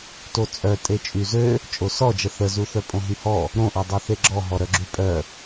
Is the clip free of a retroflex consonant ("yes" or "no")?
yes